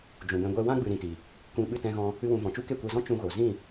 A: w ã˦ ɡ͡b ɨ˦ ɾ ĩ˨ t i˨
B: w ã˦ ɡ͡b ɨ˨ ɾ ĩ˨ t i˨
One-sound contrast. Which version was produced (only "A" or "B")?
B